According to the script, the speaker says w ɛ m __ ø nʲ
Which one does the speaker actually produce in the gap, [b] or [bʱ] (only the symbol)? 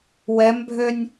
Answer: bʱ